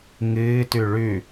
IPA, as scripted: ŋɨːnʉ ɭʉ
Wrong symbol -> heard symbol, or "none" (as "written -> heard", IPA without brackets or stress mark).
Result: n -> t